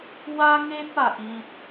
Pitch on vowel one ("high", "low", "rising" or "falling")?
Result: high